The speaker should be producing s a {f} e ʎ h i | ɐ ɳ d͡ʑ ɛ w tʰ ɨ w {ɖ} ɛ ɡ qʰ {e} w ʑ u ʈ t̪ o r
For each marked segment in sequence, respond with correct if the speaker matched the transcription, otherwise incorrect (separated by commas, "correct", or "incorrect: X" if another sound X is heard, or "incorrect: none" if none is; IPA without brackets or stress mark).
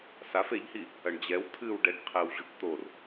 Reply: correct, correct, correct